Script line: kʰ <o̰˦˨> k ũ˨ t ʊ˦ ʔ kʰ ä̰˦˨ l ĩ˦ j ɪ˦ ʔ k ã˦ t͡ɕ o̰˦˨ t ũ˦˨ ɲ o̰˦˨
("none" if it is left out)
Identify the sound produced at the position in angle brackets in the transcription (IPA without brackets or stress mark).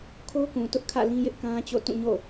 o˦